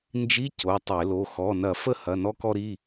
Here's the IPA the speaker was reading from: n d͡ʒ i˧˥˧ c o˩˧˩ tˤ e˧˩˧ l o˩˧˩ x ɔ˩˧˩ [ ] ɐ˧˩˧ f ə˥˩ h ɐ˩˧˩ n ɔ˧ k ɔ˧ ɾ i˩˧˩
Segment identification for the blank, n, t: n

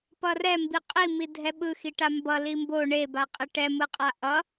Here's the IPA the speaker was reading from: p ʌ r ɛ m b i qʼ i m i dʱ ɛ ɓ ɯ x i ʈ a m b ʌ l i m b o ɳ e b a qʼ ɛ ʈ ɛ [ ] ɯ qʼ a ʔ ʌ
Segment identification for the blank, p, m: m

